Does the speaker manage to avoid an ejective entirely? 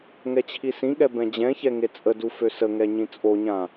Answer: no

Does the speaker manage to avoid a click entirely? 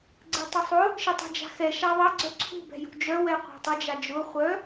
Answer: no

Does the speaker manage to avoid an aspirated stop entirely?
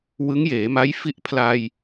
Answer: no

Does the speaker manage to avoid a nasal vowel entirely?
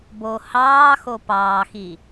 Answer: yes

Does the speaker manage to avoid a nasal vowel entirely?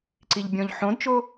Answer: no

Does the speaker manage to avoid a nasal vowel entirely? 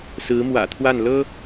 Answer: yes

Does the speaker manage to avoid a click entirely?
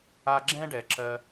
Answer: no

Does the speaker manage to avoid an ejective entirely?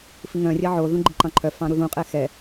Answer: no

